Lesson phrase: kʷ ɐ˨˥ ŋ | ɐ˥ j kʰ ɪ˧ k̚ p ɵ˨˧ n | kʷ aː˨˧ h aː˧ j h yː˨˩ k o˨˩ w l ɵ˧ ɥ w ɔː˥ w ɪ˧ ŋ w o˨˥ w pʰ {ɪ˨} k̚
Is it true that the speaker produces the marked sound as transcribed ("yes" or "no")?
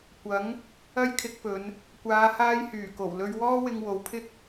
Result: no